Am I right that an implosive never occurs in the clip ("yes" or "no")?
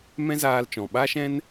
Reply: no